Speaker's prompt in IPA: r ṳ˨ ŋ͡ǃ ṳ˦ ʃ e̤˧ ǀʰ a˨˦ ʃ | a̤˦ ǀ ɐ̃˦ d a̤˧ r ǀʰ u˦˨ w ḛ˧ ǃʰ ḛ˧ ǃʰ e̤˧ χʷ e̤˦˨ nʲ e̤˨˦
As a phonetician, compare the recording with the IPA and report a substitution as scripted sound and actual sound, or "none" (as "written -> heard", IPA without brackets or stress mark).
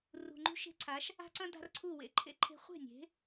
none